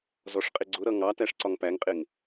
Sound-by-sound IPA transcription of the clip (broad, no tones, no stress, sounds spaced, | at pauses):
z ɔ ʂ qʼ ɪ ɡ͡ǀ ʊ ɾ ʌ ŋ ɑ t æ ʂ ǀ ɒ ŋ p æ ŋ qʼ ɪ ŋ